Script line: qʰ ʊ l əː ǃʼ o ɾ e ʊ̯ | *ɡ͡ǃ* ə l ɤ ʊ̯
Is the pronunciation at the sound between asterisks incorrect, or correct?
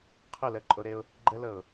correct